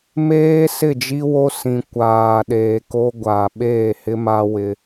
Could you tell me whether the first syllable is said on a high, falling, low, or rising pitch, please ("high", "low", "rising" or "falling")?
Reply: high